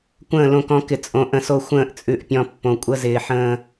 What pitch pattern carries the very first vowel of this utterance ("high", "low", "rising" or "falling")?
falling